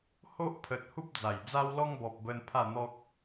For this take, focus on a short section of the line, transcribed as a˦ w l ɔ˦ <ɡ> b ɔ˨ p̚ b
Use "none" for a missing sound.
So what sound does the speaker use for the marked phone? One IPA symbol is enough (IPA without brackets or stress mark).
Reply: ŋ